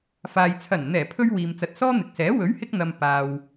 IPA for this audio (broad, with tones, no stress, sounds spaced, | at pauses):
f aː˨ j t͡sʰ ɐ˨˩ n n̪ ɛː˨˩ pʰ ɵ˧ ɥ w iː˨ m t͡s ɐ˨ t̚ s ɔː˥ n̪ ɪ˨ k̚ s ɛː˨˥ w ɵ˨˥ ɥ h ɪ˧ k̚ n̪ ɐ˨ m p aː˨ w